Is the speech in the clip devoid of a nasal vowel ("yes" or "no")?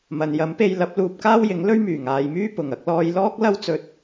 yes